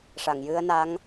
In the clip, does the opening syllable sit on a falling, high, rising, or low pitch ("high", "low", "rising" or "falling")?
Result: low